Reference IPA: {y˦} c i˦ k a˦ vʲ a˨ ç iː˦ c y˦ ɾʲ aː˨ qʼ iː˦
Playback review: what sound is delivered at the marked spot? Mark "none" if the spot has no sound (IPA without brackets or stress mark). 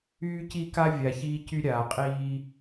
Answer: yː˦